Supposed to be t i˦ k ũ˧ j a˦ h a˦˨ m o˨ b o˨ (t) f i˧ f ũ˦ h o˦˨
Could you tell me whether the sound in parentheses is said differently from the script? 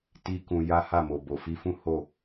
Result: yes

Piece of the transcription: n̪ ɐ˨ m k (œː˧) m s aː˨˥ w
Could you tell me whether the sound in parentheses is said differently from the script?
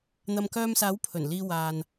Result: no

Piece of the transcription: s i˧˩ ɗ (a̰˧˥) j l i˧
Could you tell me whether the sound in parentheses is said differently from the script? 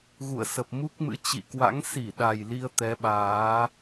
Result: yes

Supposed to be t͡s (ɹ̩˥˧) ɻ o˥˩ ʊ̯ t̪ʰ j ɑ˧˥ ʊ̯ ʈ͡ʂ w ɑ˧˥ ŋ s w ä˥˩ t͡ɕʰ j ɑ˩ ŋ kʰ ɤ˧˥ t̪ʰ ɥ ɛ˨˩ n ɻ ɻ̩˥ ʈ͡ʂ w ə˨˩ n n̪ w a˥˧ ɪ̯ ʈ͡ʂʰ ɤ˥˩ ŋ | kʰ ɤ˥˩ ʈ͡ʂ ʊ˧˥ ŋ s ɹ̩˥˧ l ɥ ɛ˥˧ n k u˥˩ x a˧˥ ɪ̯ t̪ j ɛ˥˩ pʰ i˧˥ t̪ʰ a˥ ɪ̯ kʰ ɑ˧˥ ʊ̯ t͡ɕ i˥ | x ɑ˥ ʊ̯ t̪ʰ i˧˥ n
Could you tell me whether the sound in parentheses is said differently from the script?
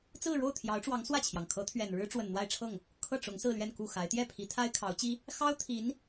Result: no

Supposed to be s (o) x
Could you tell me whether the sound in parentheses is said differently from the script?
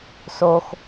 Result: no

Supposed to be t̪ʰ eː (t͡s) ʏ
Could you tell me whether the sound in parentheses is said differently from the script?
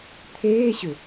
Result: yes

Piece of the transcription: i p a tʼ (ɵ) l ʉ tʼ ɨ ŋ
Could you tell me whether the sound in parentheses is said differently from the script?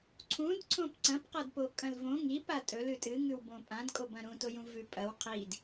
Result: no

